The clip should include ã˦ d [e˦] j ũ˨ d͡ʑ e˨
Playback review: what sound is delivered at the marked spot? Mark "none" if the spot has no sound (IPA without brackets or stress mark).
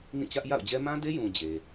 e˦